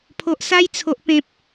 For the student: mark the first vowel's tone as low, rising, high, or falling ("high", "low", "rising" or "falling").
low